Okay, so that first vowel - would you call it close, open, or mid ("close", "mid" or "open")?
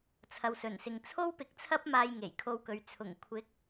open